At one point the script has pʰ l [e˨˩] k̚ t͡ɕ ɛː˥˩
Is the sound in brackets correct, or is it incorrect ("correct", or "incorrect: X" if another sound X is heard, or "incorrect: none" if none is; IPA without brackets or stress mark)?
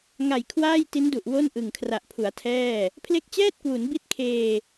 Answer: incorrect: e˦˥